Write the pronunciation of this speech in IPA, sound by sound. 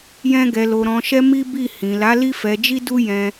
j ɛ̃˦ ɡ ɛ˧ l o˧ ɾ ɔ̃˧ ʃ ɛ˦ m i˦ b i˦˨ h ĩ˨ l a˨˦ l i˦ f ɛ˧ d͡ʒ i˦ d u˦ j ɛ̃˦

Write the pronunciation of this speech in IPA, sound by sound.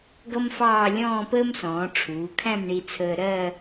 ɡ ʌ˥ m f ɑː˥˧ lʲ ɔ̃ː˥˧ p əː˥ m s ɔ̃ː˩˧ ʈ͡ʂʰ uː˩˧ kʰ æ̃˥˧ m ɳ i˧ t͡sʰ əː˧ ɾ ɜ˥˧

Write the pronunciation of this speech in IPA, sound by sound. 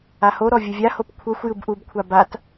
a h o ɾ ɔ vʲ u vʲ a h o p kʷʰ ɤ xʷ j ɯ b ʔ u b kʷʰ a b a t

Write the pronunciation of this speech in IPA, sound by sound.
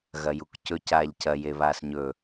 ɣ ɐ j u k c ɵ c aː ʎ c ɐ j e β aː s ɲ ɵ

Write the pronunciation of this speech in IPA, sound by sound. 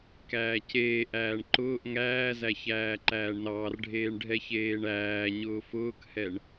k æː c eː ʔ æː ɳ ǃ ʊː ʔ ŋ æː z æ ç æː ǃ æː ɳ n ɑː r ɖʱ eː ɳ ɖʱ ɛ ç eː ɳ æː ɲ ʊː f ʊː k h ɛ ɳ

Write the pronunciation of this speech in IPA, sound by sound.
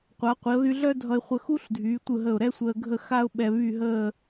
qʷ a˩˧ qʷ i˩˧ ʊ̯ ð y˧ ɮ œ˥ dʱ ʌ˧ ɪ̯ χʷ ə˧ x u˥ ɬ dʱ yː˩˧ tʷ ɯ˧˩ ɦ ə˧˩ ʊ̯ ɾ ɛ˥ sʷ əː˧ ɡʱ ə˥˧ x a˥ ʊ̯ ɓ ɛ˧ β y˥˧ ɦ əː˥˧

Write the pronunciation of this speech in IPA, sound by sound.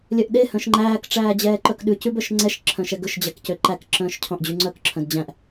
lʲ œ ʔ ɗ e h œ̃ ʃ ŋ͡ǃ æː k ʈ͡ʂ æː d͡ʑ ɛː ǃ œ k ɗ ʉ c ʉ b œ ʃ ŋ͡ǀ ɛ ʃ ǁʰ œ̃ ʃ ɛ ɡ ɵ ʃ d͡ʑ æ k c ø ǃ æ k ǁ œ̃ː ʃ cʰ ɔ̃ ʔ d͡ʑ ʉ ŋ͡ǀ œ k ǁʰ œ̃ d d͡ʑ æ̃ ʔ

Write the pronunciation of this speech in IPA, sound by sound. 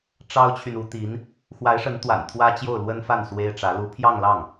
ʈ͡ʂ ɑ˥ ʊ̯ t͡ɕʰ y˨ n u˧˥ t̪ i˧˥ n | x w a˧˥ ɪ̯ ʂ ə˧˥ n t̪ w a̰˨˩ n t̪ʰ w ä˥ t͡ɕ j o˥˩ ʊ̯ l w ə˥ n f a˥˩ n s w e˥ ɪ̯ ʈ͡ʂ ä˧˥ l u˧˥ pʰ j ɑ˥˧ ŋ l ɑ˥˩ ŋ

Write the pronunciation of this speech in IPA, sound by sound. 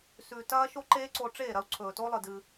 s ʉ˨ t ɐː˦ ʃ o˦ ǃ eː˦ ǀ o˧ ʈ͡ʂ eː˦˨ ɾ ɐ˦ u̯ ǀʰ ɵː˨ t o˦ lˠ ɨ˨ d ɨ˧

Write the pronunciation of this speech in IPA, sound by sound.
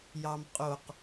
j ɑ m qʼ o q

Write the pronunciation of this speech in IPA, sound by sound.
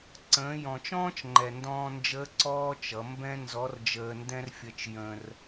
ǀ ə̃ː˩˧ j ɔ̃˩ t͡ʃ ɔ̃ː˥ t͡ʃ ŋ͡ǃ ɛ˩ n d ɔ̃ː˧ n d͡ʒ əː˧˥ ǀ ɔː˥ t͡ʃ ʌ˩˧ m b ɛ̃˥ n z ɔ˧˥ r d͡ʒ əː˧ n d ɛ̃˥ r fʲ ə˧ t͡ʃ j ə̃˧ r

